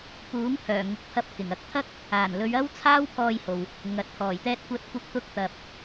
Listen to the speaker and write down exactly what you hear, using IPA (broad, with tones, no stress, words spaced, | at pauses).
puː˨˥ŋ pʰœː˨˩ŋʊ˨k̚pʰɐ˧p̚ kɪ˨˩ŋɐ˨k̚ t̪ʰɐ˥k̚ | aː˨˩nlɵ˨˧ɥ ɐ˥wt͡sʰaː˥wpʰɔː˧jho˨w | ŋɐ˨t̚t̪ʰɔː˨˩j t̪ɛː˧t̚kʷɐ˧t̚ kʷɐ˧k̚ t̪ʊ˧k̚t̪ɐ˨p̚